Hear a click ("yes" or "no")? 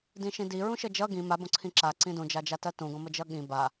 yes